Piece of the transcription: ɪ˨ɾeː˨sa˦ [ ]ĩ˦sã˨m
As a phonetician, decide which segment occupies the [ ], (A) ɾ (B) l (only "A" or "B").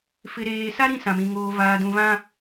A